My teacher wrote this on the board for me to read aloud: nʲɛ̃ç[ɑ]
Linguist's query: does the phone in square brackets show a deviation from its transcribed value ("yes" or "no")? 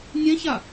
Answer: yes